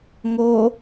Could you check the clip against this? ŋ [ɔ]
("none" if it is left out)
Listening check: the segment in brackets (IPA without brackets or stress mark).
o